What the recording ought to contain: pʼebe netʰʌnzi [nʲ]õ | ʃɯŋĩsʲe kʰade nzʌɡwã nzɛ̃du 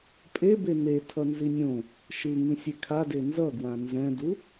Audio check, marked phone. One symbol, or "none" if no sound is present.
nʲ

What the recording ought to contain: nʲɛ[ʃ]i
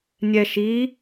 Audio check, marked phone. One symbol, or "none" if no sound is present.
ʃ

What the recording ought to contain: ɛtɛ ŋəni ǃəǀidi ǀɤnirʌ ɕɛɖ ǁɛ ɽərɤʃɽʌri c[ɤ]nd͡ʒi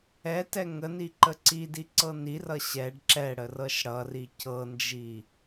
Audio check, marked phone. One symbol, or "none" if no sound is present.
ɤ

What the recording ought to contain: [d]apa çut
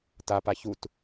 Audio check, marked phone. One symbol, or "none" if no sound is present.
t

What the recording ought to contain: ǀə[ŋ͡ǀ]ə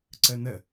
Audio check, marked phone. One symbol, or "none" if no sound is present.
n̪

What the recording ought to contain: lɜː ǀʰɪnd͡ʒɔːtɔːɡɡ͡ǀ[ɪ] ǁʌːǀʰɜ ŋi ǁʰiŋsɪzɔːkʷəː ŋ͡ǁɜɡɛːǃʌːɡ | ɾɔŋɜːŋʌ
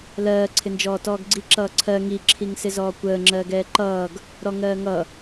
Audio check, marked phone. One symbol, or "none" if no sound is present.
i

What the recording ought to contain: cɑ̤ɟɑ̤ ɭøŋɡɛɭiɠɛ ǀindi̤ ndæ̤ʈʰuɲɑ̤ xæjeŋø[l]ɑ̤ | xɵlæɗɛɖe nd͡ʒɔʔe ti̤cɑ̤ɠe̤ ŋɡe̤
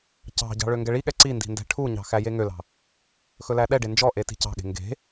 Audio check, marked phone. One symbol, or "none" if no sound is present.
l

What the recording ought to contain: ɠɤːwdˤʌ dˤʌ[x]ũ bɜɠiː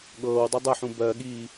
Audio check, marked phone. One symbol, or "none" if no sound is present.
ħ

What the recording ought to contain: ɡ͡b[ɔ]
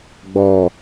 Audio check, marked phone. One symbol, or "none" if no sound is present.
ɔ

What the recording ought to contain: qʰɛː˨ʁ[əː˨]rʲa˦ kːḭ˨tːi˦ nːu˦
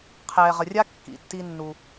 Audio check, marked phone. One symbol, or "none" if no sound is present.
ə˨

